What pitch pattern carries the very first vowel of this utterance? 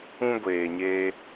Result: high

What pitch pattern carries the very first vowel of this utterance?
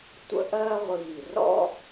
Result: high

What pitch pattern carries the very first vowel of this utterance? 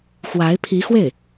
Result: rising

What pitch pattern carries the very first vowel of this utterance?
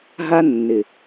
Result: high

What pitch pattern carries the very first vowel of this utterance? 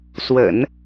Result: low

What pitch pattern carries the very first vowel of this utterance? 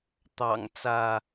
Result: low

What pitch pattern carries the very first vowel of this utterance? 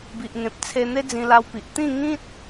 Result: low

